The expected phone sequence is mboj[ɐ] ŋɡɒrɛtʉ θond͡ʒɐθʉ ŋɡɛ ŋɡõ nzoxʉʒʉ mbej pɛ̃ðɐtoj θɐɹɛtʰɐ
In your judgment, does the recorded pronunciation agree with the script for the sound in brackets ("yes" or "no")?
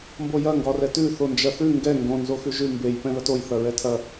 yes